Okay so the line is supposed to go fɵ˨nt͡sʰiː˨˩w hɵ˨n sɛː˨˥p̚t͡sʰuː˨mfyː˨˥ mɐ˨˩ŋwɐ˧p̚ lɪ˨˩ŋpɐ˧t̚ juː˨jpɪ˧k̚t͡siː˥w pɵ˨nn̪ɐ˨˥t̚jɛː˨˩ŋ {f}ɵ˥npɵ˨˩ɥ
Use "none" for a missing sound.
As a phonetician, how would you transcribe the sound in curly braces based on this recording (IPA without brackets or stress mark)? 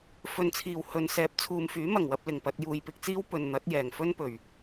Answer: f